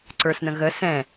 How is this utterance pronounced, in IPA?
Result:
ǀ ə˞ s n ə̃ ɣ ə s ɛ̃

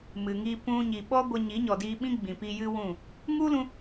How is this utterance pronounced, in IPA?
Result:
m ɨ˨ ŋ i˧ p ũ˧ ɲ i˨ ɓ ɔ˦ ɡʷ ə˧ ɲ i˨˦ ɲ ɔ˨ d iː˧ ɓ ĩ˦ ɡ͡b ĩ˨ p i˧ j ɨ˦ w ũ˦˨ | ŋ u˦ l ũ˧

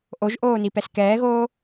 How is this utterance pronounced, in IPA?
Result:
ʔ o ʒ ʔ oː n i p ɛ s k ɛː ɣ oː

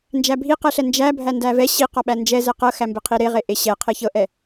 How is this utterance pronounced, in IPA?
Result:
n d͡ʒ æ bʱ i q ɛ ɬ ɛ n d͡ʒ æ bʱ æ n d æ v ɛ ɕ i q ɒ ɓ æ n d͡ʒ ɛ z ɛ q ɤ x æ m b e qʰ i ɾ e ʁ e ʔ e ɕ ɛ qʰ e ç ɤ ʔ ɛ

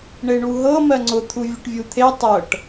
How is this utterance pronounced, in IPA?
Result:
ɳ e ɳ u ɦ ɤ m ɜ ŋ͡ǀ ʊ t̪ʰ u vʲ ʊ ʈ vʲ u t̪ʰ e tˤ ɤ ʈ

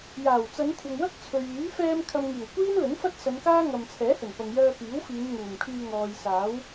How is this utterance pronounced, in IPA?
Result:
j aː˨˩ w t͡s ɐ˨˧ n kʷʰ ɐ˨ ŋ w ɐ˥ k̚ t͡sʰ ɵ˨ ɥ yː˨˥ f ɛː˧ m kʰ ɐ˨ m ŋ iː˨˩ w kʷ iː˥ n l ɵ˨˥ n f ɐ˥ t̚ s ɐ˨˧ n k aː˥ ŋ ɐ˨ m t͡sʰ ɛː˨˥ h ɵ˨˩ n p ɐ˨ ŋ j œː˧ p iː˨˥ w f iː˨˧ n ŋ uː˨˩ m kʰ yː˧ ŋ ɔː˨ j s aː˨˥ w

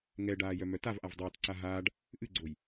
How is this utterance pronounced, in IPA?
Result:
ŋ ɛ ɖ aː j œ m œ t a v ʔ a v dˤ ʊː t ǀ a ɦ aː ɖ | ʔ ɨ ɡ͡ǀ o j

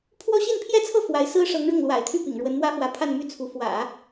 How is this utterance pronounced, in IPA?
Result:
pʰ w ɔ˥ ɕ i˥˧ n pʰ j ɛ˥˧ t͡sʰ ɤ˥˩ f w a˧˥ ɪ̯ s ɹ̩˥ ʂ ɤ˧˥ ŋ ɻ ʊ˥˩ ŋ l w a̰˨˩ ɪ̯ t̪ʰ y˥˩ p ḭ˨˩ ŋ ɻ w ə˧˥ n m w ä˥ f w ä˧˥ pʰ a˥˧ n m y˥˩ t͡sʰ u˧˥ f w ä̰˨˩˦

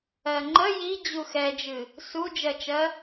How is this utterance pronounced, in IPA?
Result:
ɜ ŋ͡ǃ ə j i d͡ʑ u x ɛ d͡ʒ ɨ | s u d͡ʒ ɜ t͡ʃ ɜ

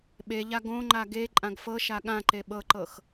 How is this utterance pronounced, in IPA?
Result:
ɓ e ʎ a ɡ õ ŋ͡ǃ a ɡ e ǃʼ ã ɡ f ɤ ʃ a ɠ ã ǃ e ɓ ɤ ǃ ɤ x

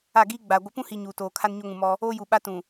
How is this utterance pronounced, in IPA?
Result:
a˦˨ ɡ iː˦ ɡ͡b a˨ ɡʷ ɪ˨˦ p ũ˦ h i˨ ɲ uː˨ t oː˨ kʰ a˦ n ɲ o˦ ŋ ũ˨ m ɔ˦ | oː˦ j u˨ ɓ a˦ t ũ˨

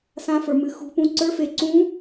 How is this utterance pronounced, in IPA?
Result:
s ã˧˥ f ə˞˨ m ɨ˨ x ṳ˧˥ p ũ˧˥ ǀ ə˞˧˥ f e˨ ǀ ũ˧˥

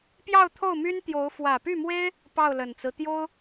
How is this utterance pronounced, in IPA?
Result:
p j ɑ˥˧ ʊ̯ t̪ʰ o˥˩ ʊ̯ m y˥ n t̪ j o˧˥ ʊ̯ f w ä˨˩ p y˥˩ m w e˥ ɪ̯ | p ɑ˥˩ ʊ̯ l ə˨˩ n t͡s ɹ̩˦ t̪ j o˥ ʊ̯

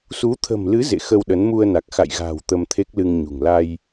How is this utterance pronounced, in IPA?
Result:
s u˨˦ t̪ʰ ə̤˨˩ m l ɨ˨˦ z ḛ˧˨ x ə˧ w ɗ ə˨˦ n m u˧ ə̯ n a˨˩ k̚ x a̰˧˨ j ɣ a̤ː˨˩ w t̪ ə˧ m t̪ʰ e˦˥ k̚ l ɨ˧ ŋ ɲ ṳ˨˩ ŋ l a˧ j

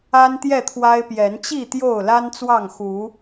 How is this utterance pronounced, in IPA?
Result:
a˦ n t̪ j ɛ˥˨ t̪ʰ w a˦ ɪ̯ p j ɛ˨˦ n t͡ɕ i˥˨ t̪ j o˥˨ ʊ̯ l a˦ n t͡s w ɑ˥˨ ŋ x u˨˦

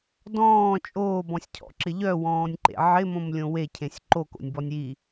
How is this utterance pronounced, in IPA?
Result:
d ɔ̃ː t͡ʃʼ oː b ɔ̃ sʲ cʰ ɔ̰ ǁ ɪ ʎ œ w ɔ̃ː nʲ ǃ ḛ ʕ ɪ m õ m lʲ õ w e cʰ ẽ sʲ ǃ o k o̰ nʲ b ɔ nʲ i

